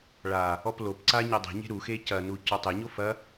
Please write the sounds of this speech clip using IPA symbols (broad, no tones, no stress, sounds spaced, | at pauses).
ɭ a | ɔ p l o p ǀ a ɲ ɛ dˤ e̤ ɲ e̤ ɾ u x e c ɐ n u c ɔ tˤ e ɲ o f ɐ